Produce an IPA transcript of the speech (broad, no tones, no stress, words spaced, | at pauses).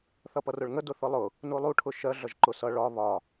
θʌpʌrʊɭŋə dʊθʊlˠʊ | nulˠu ʈʰʊʃɜ ɮʌʒǃʊsʌ ɭɒ βɒ